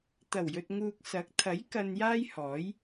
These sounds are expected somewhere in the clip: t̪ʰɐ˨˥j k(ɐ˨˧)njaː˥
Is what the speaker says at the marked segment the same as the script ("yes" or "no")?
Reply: no